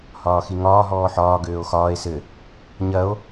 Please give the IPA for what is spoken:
h ɒː x i ŋ ɒː ɦ ɔː ħ ɒː ɡ øː o̯ x ɒː e̯ s ɘ | ɲ ɐ o̯

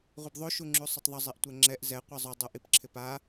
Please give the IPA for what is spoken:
ʁʷ i b ðˤ o ʃ u ŋ͡ǁ u sˤ ʊ tˤ ðˤ ʊ zˤ i ʔ tʷ ɛ ŋ͡ǁ ɛ ʔ z ɛ qʷ i zˤ u dˤ u ʔ i p ǁʰ ɪ p a

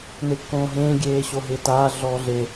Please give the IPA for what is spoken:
n e kː õː ɦ ẽː ɡʲ eː ɕ o ɦ ɪː t aː ɮ ɔː ɮ e

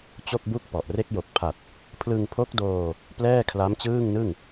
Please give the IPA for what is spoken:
t͡ɕ o˥˩ k̚ b u˥˩ k̚ p ɔ˨˩ ʔ r e˦˥ k̚ j o˨˩ k̚ pʰ a˨˩ t̚ | pʰ l ɯ˧ ŋ pʰ o˦˥ k̚ d oː˧ | p l ɛː˥˩ kʰ l a˦˥ m t͡ɕ ɯː˥˩ ŋ n ɯ˥˩ ŋ

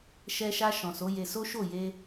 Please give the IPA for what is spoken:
ʃ ɛ˧ ʃ a˧ ʃ ɔ̃˨ s o˨˦ j e˧ s o˦ ʃ o˦˨ j e˧

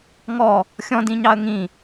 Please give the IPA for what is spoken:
ŋ ɔ | xʲ ɔ̃ d ĩ ɲ ɑ ə̯ ŋ ĩ

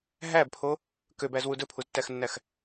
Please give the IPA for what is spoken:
ɦ æ b pʰ o | k ø b æ z w u d ɵ pʰ u z tː æ x nː æ x

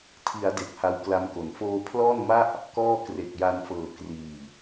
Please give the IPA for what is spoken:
tʰ i˩˦ a̯ d e˨˩ k̚ h a˧ w k l a˧ m k o˩˦ n f oː˧ pʰ l ɔː˥˩ n m a˥˩ ʔ | k ɔː˥˩ k r e˨˩ k̚ j a˧ n f ɤː˨˩ k r iː˨˩

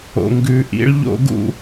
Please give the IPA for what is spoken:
o̰˨ ŋ ɡ ʉ˨ ʔ ḭ˦ ɭ ʎ o̰˦ ɡ ṵ˦

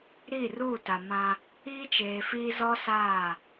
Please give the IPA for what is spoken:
ɾ i˦˨ r uː˦˨ t a˨ m ã˦ | iː˦ t͡ʃ eː˨ f iː˦ z ɔ˦ s aː˦˨

